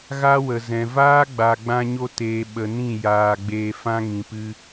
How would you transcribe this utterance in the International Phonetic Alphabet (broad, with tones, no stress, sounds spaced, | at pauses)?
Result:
ɣ a˦ w ə˨ z ɛ̃˨ v aː˦ ɡ͡b a˨ ɡ͡b ã˧ ɲ o˧ t eː˨ ɓ ə˨ n ĩ˦˨ j aː˨ ɡ͡b eː˧ f ã˦ ŋ ĩ˨ p ɨ˧